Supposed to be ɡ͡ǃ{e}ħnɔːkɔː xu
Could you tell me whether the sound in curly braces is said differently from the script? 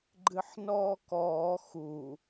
yes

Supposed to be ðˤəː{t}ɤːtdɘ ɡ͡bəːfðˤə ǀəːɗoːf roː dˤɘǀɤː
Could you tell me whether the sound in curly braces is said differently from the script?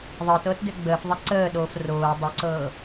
no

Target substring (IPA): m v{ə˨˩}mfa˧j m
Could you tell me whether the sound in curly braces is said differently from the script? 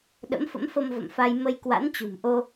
yes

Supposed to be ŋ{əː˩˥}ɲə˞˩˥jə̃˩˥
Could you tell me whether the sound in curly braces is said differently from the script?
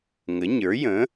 yes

